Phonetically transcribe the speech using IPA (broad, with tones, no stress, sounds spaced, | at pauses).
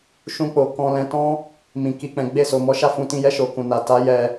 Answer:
ʃ ũ˧ k͡p o˨ k ɔ̃˧ l ɛ̃˧ t ɔ̃˧ | m ĩ˨ k i˨ k͡p ɛ̃˨ ɡ͡b e˧ s o˨ m ɔ˨˦ ʃ a˦˨ f ũ˧ t ĩ˧ j ɛ˧ ʃ o˨ k ũ˨ n a˨ t a˨˦ j ɛ˦